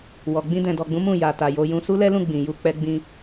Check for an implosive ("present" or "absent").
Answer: absent